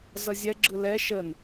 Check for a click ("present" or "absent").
present